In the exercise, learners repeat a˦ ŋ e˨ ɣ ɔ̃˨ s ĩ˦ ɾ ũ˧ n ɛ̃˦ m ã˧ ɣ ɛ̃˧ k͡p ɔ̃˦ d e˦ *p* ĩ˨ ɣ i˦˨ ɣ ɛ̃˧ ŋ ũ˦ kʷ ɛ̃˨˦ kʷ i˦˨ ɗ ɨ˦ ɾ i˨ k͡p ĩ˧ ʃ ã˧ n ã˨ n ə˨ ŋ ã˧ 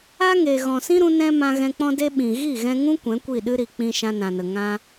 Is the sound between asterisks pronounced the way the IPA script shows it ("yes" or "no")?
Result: no